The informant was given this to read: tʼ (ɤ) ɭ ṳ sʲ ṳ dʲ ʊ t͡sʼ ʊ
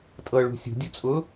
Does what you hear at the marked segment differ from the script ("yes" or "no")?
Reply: no